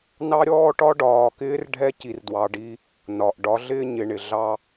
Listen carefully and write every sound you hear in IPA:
n ɑ˦ ɾʲ ɔː˦ ʈ ɒ˦ ɖ ɒː˨ k ɪː˦ r ɖʱ ɛ˦ c i˨ r d w ɑ˨ ɖ i˦ | n ɒ˨ ʔ ɖ ɒ˨˦ ɮ ɪː˦ ɲ ɪ˨ ɳ ɪ˨ ɮ ɑ˦

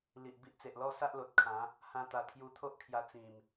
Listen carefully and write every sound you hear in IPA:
l i˨ ʔ b i˦ ʔ t͡s e˨ ʔ l ɔ˥˧ s a˦ ʔ l o˨ t̚ kʰ ã˨˦ | h ã˦ t̪ a˧ t̪ʰ j u˧ t̪ʰ o˦ ʔ kʰ j a˧ t͡s ĩ˨˩ m

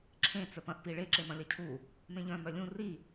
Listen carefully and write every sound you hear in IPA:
ǁʰ ẽ t͡s œ p ɐ̃ ʔ p i ɭ e ǁ e m ɐ̃ lʲ ɐ cʰ u | m ẽ ʎ œ̃ m œ lʲ ũ r i

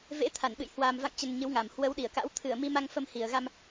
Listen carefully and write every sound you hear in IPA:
v ḛ˧˥ t̪ʰ a˧˩ n ɓ ɨ̰˧˨ j h w a˨˩ m v a̰˧˨ ŋ t͡ɕ ə˨˩ n ɲ ɨ˨˦ w ŋ a˨˩ m h w ə˨˦ w ɗ i˧˩ ə̯ k a̰˧˥ w t̪ʰ ɨ˧˩ ə̯ m i˧ m a˧ ŋ f ə˧ m h i˨˩ ə̯ ɣ a˧ m

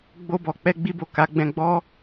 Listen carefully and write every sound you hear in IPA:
ɡ͡b o˧ b ɔ˨ k͡p ɛ˧ ɡ͡b i˧ b o˨ k a˨˦ ɡ͡b ɛ̃˧ ɡ͡b ɔ˦

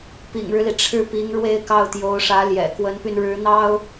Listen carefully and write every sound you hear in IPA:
p ḭ˨˩ ŋ ɻ ɻ̩˦ l i˩ ʈ͡ʂʰ ɻ̩˥˩ p i˧˥ ŋ ɻ w e˥ ɪ̯ k ɑ˥˩ ʊ̯ t̪ j o˧˥ ʊ̯ ʂ ä˧˥ l j ɛ̰˨˩ k w ə˧˥ n p y˧ n ɻ ɻ̩˧˥ n̪ ɑ˥ ʊ̯

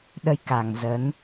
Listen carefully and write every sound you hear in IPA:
ɗ ə˧ j k a˨˩ ŋ z ə˨˦ n

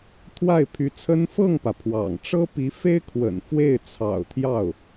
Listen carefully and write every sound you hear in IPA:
t̪ʰ w a˥˩ ɪ̯ pʰ y˧˥ t͡sʰ ə˥ n f ɤ˥˩ ŋ p ä˩ pʰ w ɑ̰˨˩ ŋ ʈ͡ʂ ɤ˥ p i˧˥ f e˥ ɪ̯ kʰ w ə̰˨˩ n f w e˥˩ ɪ̯ t͡sʰ ɑ̰˨˩ ʊ̯ t̪ʰ j ɑ˥˩ ʊ̯

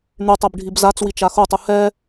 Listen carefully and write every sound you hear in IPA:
n̪ y tˤ ɛ b ɖʱ i b z a t͡s w i t͡ʃ a x o tˤ u h ɛ

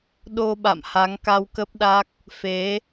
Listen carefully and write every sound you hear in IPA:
ɗ o˧ ɓ a̰˧˨ m h a˨˦ ŋ k a˧ w k ə˦˥ p̚ ɗ a˦˥ k̚ | f e˨˦

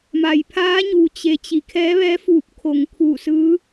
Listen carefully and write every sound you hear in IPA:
m a˩ j pʰ aː˧˥ ɲ u˩ t͡ɕ e˩ t͡ɕ i˩ kʰ ɛː˧˥ ʋ ɛː˧˥ f uː˧˩ p̚ kʰ o˩ ŋ kʰ uː˧˩ s ɯː˧˥

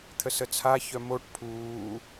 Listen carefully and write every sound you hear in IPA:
t̪ʰ ə s ə t͡sʰ a ç œ m o ʈ pʰ uː

